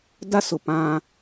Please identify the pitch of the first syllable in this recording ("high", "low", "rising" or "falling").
high